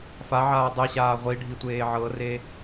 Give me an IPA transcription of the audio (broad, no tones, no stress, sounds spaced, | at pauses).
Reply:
f a ʕ aː dˤ ɛ ɕ aː ʁʷ i ɖʱ i tʷ eː ʕ ɤ r e